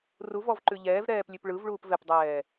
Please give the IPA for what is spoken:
r u v ɔ v ǃ ʉ ʎ ɛː v ɾ ɛː p lʲ ʉ p ɭ ɯ v ɭ uː p v ɛ p dˤ ɛː

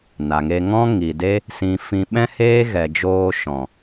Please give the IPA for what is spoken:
n a˨ ŋ e˧ ŋ ɔ̃˦ ŋ i˨ d e˦ | s ĩ˧ f ĩ˧ ɓ ɛ̃˦ h eː˦ ɣ ɛ˨ d͡ʒ oː˧ ʃ ɔ̃˨

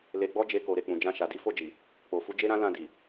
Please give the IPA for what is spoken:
l e˨ ɡ͡b ɔ˧ d͡ʒ e˧ k o˨ ɾ e˨ k͡p ũ˨ d͡ʒ ã˧ ʃ a˨ d i˨˦ f o˦˨ d͡ʒ i˨ | k͡p o˨ f u˨˦ d͡ʒ e˦ ɾ ã˦ l ã˦˨ d i˨

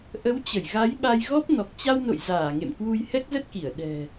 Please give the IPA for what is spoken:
ʔ ə˨˦ w t͡ɕ ə˧˩ j ɣ a˨˦ j ɓ a˧ j ɣ ɔ˦˥ p̚ n ɔ˨˩ k̚ t͡ɕ a˧ w n o̰˧˨ j z aː˧˩ ŋ ḛ˧˨ m k w u˧ j h ɛ˦˥ k̚ z ə˦˥ t̚ k i˧˩ ə̯ ɗ ɛ̤˨˩

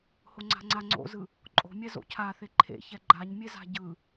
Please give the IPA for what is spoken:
h o ŋ͡ǀ a̤ ŋ͡ǀ a ŋ͡ǀ o̰ z ɯ | ǃʼ o̤ mʲ ɛ z o̰ cʰ a θ e ǃʰ ḛ ç ɛ ɡ͡ǃ a ɲ mʲ e z a̤ ɟ ɯ

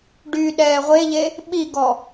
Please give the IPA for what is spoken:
ɖ y ɗ ɛː ʁʷ e ʎ e | ɓ i ɡ ɔ

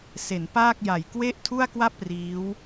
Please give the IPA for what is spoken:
s e˩˦ n p aː˥˩ k̚ j a˨˩ j k w e˥˩ ʔ tʰ u˥˩ a̯ k w a˥˩ p̚ r iː˦˥ w

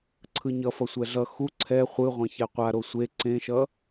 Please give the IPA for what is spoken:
ǀʰ ɯ ɲ ʌ f ʌ sʷ ɛ ɮ ʌ x u ǀʰ ɛ χʷ ɯ ʁʷ ẽ ç ɛ qʷ a ɾ o sʷ e ǀ ẽ ʃ ʌ

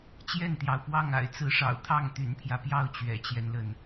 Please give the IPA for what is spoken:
t͡ɕ j ɛ˥˨ n t̪ j ɑ˩ ʊ̯ p w ɑ˥˨ ŋ a̰˨˩ ɪ̯ t͡s ɹ̩˨˦ ʂ ɑ̰˨˩ ʊ̯ t̪ʰ ɑ˥˨ ŋ t̪ y̰˨˩ n pʰ j ä˦ p j ɑ˥˨ ʊ̯ t͡ɕ ɥ ɛ̰˨˩ t͡ɕ j ɛ˦ n l ə˩ n

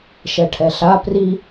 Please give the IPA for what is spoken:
ʃ ɛ ʈʰ ɛ ɬ a p r i

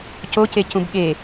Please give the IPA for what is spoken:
c o c e c ũ b ɠ e

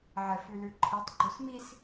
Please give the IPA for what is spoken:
ʕ ɛ f ʉ l ʉ ǃʰ i tˤ ɡ͡ǃ o s m i s

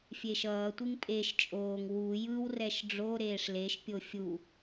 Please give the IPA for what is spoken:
fʲ e ʃ ʌː tʷ i ŋ pʼ e ʃ t͡ʃʼ oː ŋ w u j ɯ w r ɛ ʃ ɖ͡ʐ o ɾ eː ʂ l e ʃ pʲ o fʲ u

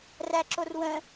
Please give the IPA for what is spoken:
r æ ǁ o r w ə̃

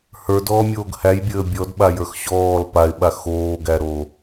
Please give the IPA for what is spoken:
h ə˞ d ɔː mʲ oː ɡ h æ j bʲ əː bʲ ɔ d ɓ a j ə˞ x ɕ ɔː l p a ɪ̯ ɓ a x oː ɡ æ ɾ o

